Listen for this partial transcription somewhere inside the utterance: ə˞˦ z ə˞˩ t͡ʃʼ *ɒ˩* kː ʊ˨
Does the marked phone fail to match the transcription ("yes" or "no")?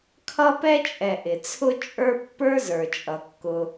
yes